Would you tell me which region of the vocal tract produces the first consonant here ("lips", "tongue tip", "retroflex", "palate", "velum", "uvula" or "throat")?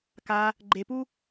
velum